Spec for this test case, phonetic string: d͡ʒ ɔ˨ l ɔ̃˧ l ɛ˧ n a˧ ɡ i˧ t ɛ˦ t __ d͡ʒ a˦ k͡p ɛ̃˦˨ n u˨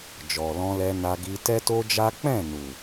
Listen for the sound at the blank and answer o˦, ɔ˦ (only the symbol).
o˦